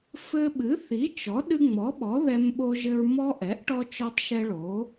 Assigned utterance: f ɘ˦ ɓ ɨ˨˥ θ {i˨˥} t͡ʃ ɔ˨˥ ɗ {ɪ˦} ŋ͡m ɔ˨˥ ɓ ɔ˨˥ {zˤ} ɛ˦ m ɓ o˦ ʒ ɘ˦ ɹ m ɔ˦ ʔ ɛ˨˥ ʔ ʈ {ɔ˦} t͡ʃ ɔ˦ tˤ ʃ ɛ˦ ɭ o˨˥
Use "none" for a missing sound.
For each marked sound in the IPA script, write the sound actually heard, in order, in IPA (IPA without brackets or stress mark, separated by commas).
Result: i˨˥, ɨ˦, ð, ɔ˦